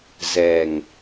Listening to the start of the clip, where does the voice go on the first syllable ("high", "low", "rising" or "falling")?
low